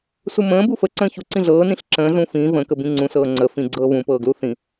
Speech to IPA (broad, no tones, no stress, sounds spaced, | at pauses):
s u m ə̃ː b u f ə ǀ ə̃ː ç u ǀ ĩ ɮ ɤː n ĩ ɬ ǁ ə̃ː ɮ ũ f ĩː v ə̃ k ə b ĩ ŋ͡ǀ ũ s ɤː ŋ͡ǀ ə f ĩ ɡ͡ǀ ɤː β ũ p ɤː ɡ l u θ ĩ